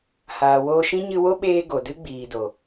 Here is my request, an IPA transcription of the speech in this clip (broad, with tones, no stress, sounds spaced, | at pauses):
h aː˨ w oː˧ ʃ ĩ˦ ɲ ɨ˧ w o˦ ɓ eː˧ ɡ o˨ d ɨ˦ ɡ͡b iː˨ d o˨